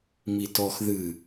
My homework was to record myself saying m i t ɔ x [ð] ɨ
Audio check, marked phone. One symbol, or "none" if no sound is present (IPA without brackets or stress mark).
ð